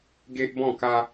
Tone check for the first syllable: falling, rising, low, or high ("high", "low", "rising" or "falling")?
high